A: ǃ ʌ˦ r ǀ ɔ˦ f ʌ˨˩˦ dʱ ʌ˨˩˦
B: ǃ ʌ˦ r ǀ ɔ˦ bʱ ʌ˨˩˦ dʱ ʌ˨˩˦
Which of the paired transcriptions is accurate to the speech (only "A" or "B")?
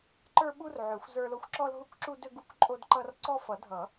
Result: A